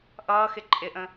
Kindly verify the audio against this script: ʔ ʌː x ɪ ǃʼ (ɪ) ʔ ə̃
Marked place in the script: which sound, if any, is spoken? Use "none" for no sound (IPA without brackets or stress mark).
ɪ